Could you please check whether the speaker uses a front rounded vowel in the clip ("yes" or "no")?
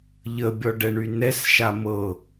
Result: yes